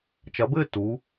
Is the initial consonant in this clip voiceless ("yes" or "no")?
yes